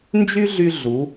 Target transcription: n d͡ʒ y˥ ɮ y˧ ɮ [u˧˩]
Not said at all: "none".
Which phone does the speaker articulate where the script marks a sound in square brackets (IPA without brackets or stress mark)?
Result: u˩˧